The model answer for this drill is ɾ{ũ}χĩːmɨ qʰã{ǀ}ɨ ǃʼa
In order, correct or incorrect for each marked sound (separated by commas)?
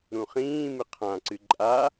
correct, correct